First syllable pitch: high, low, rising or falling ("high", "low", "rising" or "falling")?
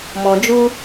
low